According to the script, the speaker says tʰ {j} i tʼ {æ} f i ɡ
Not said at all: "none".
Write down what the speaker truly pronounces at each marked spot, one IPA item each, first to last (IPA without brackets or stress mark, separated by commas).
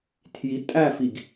j, æ